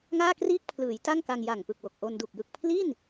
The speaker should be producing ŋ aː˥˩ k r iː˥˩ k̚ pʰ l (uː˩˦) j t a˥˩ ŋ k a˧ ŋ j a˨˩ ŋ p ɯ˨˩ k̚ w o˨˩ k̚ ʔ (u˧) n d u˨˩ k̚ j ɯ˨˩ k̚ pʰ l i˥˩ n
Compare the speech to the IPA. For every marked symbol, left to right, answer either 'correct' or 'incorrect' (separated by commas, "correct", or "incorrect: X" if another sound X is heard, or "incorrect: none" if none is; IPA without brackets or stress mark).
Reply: incorrect: ɯː˩˦, incorrect: o˧